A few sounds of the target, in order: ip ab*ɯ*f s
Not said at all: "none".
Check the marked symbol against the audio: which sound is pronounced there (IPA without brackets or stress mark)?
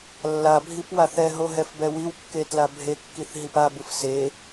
ɯ